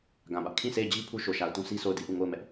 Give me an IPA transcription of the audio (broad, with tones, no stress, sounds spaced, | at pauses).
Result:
ɡ ã˨ b ä˦ ʔ kʰ ĩ˦˨ s e˦˨ ɪ̯ d͡ʑ i˦ pʰ u˦ ʃ o˨ ʃ a˨ ʊ̯ t ũ˦ s i˦ s o˦˨ ʊ̯ d i˦ ʔ u˦˨ ŋ o˦˨ ʊ̯ m ɛ˦ ʔ